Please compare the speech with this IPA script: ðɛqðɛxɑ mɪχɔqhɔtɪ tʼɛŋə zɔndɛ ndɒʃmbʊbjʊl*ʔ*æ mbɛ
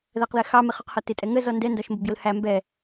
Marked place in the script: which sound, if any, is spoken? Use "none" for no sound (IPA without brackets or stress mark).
h